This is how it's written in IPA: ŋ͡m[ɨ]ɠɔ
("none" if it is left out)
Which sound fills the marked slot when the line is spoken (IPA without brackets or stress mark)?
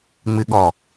ɨ